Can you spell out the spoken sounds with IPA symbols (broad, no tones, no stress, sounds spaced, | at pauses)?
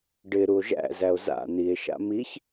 ɖ ɪ ɾ u o̯ ʒ æ̰ z æ o̯ z a̰ n̪ i e̯ ʃ a̰ m i ç